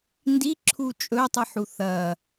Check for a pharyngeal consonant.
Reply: present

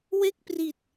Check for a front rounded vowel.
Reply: absent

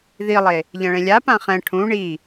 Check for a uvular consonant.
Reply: present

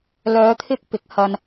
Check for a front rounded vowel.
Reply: present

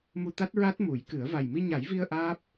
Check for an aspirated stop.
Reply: absent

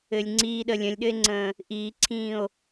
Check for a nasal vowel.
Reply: present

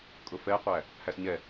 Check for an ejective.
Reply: present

